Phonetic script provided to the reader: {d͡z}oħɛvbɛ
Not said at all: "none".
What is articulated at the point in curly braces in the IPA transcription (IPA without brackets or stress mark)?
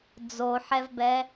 d͡z